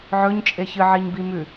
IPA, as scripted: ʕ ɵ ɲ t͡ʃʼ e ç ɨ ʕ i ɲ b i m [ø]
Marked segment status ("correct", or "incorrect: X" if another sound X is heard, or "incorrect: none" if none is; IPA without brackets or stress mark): incorrect: ʉ